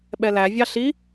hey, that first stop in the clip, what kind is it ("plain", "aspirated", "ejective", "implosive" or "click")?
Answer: implosive